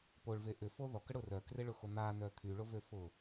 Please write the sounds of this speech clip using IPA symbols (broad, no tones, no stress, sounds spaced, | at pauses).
p o ɭ v e ʔ ʏ f o ð ɔ k ə ɽ ʊ r œ k r e ɭ ʊ x o n̪ a n œ t̪ʰ y ɭ o v ø f ʊ